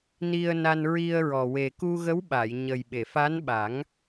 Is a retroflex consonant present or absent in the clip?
absent